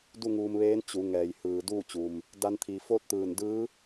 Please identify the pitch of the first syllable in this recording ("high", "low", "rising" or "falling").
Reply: falling